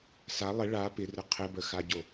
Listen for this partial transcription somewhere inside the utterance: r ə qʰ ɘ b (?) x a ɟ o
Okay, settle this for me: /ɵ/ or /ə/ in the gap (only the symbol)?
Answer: ə